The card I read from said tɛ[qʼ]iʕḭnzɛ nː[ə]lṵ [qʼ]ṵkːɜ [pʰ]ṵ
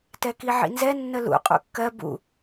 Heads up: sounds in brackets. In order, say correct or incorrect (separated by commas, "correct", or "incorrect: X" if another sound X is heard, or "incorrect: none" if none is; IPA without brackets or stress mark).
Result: incorrect: k, correct, correct, incorrect: b